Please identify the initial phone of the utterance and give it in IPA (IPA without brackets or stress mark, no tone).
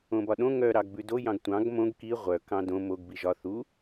õ